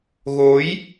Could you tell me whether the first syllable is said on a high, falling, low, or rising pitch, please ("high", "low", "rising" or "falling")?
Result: rising